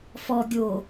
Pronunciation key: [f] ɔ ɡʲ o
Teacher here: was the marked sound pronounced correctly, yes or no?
yes